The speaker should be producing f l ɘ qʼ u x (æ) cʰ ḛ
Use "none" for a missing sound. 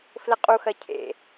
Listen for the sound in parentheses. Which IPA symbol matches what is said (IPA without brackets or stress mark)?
ɐ